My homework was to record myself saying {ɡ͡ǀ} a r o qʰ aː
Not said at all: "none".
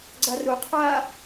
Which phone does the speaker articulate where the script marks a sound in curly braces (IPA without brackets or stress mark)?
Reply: ɡ͡ǀ